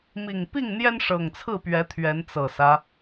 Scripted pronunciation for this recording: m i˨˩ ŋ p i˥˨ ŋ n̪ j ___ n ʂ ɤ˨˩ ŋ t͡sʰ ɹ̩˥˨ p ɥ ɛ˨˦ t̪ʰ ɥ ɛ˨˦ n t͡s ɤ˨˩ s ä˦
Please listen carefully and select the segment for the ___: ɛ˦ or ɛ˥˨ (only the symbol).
ɛ˦